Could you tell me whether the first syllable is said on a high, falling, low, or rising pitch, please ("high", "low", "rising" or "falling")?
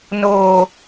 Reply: low